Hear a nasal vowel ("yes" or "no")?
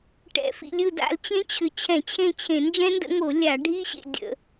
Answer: yes